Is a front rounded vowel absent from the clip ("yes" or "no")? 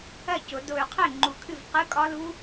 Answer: no